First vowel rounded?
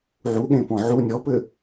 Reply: yes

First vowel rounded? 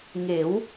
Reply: no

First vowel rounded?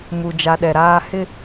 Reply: yes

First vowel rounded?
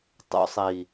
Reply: yes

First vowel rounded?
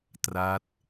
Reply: no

